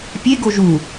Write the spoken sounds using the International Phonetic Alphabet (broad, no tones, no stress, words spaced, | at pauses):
pʲeɡo ʒu